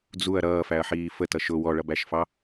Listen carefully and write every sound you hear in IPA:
d͡zuɐ̯ ɾʌːfæɐ̯ħiː fətʌ ʃʊ wɔɭʌbæʃfɑ

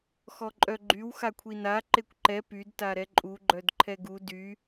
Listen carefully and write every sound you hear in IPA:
xɔǃʼœɡ͡ǃyw xakʷʰina ǃekʷǃɛ pyd taɾɛǃʼu ɡ͡ǃœdǃʰɛɡu dy

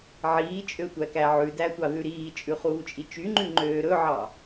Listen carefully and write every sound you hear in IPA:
ʕiːt͡ʃʼø tʷækæʕʉdæ tʷɑðʉɾiːt͡ʃʼʉ χuːt͡ʃʼit͡ʃyŋ͡ǃʉ ŋ͡ǃøːɾɵʕɑ

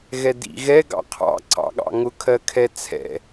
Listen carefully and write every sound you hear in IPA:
ɣɛdḭ ɣɛ ɡɑ̰qʰɑ̰ ǀɑ̰ɠɑ̰ŋʊ kʰɜkʰɛt͡sʰɛ̰

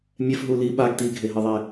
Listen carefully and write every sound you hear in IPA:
mʲɛfɦu li ɓaɡ tiɡʱeɦɯðˤe

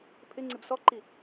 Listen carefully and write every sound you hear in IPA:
pʰɪŋ͡ǀɪb sɔǃi

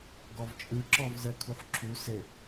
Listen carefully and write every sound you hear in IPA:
ɡɔvt͡ʃʼɯǁɔv zɜkʰuħǁʰu sɘ

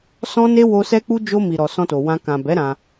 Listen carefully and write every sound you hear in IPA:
sɔ̃˦ne˦wo˧ sɛ˦k͡pu˦ d͡ʒo˧mi˨ɾɔ˨ sɔ̃˧to˨wã˧ kã˨bɛ˨˦ ɾã˧

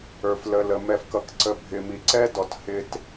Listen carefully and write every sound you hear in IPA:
ə˞˨flə˨lə˨ mɛ˨fkʌ˨kǀə˨ bʱɪ˨mi˨ǀɛ˦ dɔ˨t hɪ˦t

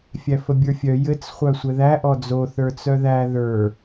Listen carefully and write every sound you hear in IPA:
fʲæfəbʲə˞fʲœ jɘt͡s χʷœsʷɘðæ ʔɔd͡zo θə˞t͡sœðæ ðə˞

